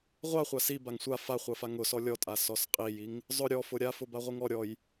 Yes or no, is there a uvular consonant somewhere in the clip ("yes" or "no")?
yes